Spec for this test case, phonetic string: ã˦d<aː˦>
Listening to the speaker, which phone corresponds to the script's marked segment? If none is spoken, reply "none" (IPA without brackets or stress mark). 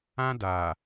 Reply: aː˨